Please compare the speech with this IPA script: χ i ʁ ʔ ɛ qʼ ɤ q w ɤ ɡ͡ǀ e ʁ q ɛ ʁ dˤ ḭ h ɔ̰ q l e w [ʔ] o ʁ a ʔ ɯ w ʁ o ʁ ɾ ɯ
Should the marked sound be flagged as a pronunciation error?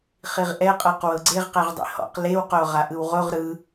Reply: yes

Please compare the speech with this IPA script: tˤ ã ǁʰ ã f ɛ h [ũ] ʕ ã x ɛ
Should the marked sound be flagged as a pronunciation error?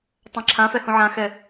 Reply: no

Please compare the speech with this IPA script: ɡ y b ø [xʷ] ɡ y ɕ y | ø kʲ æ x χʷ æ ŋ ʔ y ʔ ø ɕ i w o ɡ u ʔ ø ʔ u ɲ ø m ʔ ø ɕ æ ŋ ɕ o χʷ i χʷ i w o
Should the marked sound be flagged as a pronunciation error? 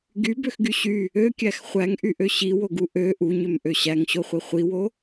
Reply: yes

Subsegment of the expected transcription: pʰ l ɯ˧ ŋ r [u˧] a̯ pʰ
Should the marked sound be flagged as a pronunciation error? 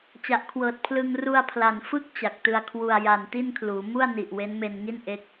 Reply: no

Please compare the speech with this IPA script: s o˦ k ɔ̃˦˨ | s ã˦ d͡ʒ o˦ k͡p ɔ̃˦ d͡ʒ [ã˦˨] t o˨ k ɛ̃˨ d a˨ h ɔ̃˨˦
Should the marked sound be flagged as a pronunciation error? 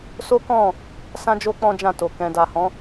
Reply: no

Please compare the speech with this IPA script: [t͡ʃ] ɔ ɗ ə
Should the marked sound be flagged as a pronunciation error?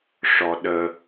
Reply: yes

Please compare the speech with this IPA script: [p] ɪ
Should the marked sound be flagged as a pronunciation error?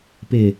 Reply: no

